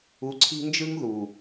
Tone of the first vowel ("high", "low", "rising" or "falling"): rising